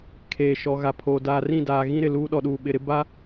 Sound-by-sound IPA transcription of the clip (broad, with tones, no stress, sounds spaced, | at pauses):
kʰ eː˨ ʃ ɔ˨ ɣ a˨ pʰ oː˨ d aː˨ r ĩ˦˨ d aː˨ ɣ ĩ˦ ɾ ɪ˨ l uː˦ ɗ ɔ˨ ɗ uː˨ ɓ ɪ˨ ɾ ɪ˦ b a˦